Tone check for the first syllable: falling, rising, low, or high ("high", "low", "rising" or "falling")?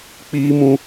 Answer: high